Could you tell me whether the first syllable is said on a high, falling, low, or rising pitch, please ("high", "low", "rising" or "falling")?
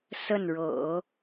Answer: falling